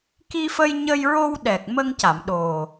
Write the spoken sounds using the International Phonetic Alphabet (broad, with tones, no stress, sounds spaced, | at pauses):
k i˧ f ə˧ j ɲ ə˧ j ɹ o˧ w ɗ ɛ˨˩ k̚ m ə˧ ŋ c a˨˩˨ m ɗ o˨˩